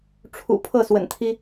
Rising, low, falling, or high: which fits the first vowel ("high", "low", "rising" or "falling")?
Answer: low